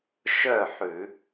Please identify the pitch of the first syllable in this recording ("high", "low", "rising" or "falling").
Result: falling